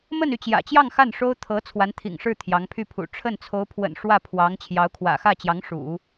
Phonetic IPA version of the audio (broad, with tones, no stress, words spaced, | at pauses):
mə˥˧ny˥˩ t͡ɕjä̰˨˩t͡ɕjɑ˥˧ŋ xa˥˩nʂo˥ʊ̯ t̪ʰɤ˧˥ t͡sʰwa˧˥nt̪ʰḭ˨˩ŋʂɻ̩˥˩ t̪ʰjɑ˧˥ŋpʰy˥˩pʰṵ˨˩ ʈ͡ʂʰə˥˩nt͡sʰo˧˥ʊ̯pʰwə̰˨˩n ʂwä˥˩pʰwɑ˧˥ŋ t͡ɕʰjɑ˧˥ʊ̯kʰwä̰˨˩xä˥˩t͡ɕjɑ˧˥ŋ ʂṵ˨˩˦